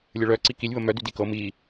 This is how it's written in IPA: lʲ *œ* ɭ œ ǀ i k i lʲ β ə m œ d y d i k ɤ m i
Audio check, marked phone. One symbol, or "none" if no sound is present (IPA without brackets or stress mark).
ə